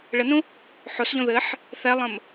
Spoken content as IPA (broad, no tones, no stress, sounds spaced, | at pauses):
ɭ ə n ũ | ħ o s ʎ õ ð ɘ ħ | θ ɛ lˠ ə̃ m